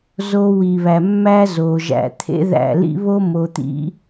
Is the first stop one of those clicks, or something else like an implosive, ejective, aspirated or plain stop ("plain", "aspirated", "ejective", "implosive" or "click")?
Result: aspirated